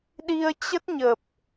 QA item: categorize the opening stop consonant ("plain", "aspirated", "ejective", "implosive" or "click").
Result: implosive